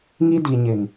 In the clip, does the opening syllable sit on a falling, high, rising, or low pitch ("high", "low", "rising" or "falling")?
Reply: high